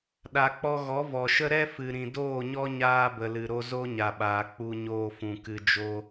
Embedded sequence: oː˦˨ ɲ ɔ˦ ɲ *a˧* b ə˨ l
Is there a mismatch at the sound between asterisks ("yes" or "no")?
yes